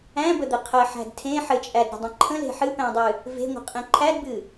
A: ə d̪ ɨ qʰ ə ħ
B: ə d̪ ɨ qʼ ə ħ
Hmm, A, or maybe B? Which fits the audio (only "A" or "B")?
A